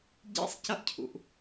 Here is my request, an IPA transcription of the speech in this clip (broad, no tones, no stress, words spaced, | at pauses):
ɟḛsˤcʌʔcʰṵʔ